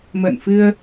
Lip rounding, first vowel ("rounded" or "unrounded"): unrounded